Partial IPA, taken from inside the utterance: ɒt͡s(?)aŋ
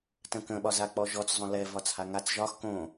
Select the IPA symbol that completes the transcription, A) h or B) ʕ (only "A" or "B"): A